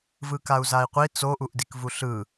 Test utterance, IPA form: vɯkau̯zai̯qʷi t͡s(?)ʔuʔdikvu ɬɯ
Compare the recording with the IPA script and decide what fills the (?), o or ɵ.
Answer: o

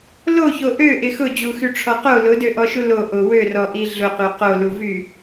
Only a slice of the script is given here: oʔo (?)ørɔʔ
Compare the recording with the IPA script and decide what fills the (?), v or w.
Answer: w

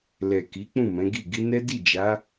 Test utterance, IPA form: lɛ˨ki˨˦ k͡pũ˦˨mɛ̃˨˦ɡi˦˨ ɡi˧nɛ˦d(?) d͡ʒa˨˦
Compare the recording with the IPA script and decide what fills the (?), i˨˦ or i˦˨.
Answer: i˦˨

